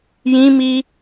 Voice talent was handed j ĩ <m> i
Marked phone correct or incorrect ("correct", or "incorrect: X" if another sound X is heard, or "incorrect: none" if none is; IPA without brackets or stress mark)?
correct